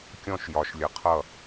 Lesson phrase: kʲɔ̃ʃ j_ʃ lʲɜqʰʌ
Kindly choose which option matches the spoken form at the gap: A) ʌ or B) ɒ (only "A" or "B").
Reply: B